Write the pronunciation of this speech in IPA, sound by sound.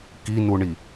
k i n u ɳ i

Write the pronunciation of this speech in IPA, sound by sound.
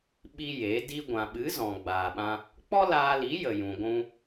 ɓ i˦ j e˨˦ d i˧ ɡʷ ã˨ ɓ ɨ˨˦ z ɔ̃˨ ɡ͡b aː˨ ɓ ã˧ | k͡p ɔ˦ l aː˧ l i˨˦ j ə˨ j ũ˨ ɡʷ ũ˧

